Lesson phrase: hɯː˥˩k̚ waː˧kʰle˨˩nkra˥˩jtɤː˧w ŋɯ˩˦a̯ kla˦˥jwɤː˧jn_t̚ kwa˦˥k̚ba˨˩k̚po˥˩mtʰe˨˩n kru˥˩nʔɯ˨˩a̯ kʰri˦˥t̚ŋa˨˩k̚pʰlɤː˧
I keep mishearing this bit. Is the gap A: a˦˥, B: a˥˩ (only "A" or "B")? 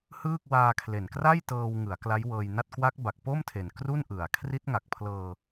B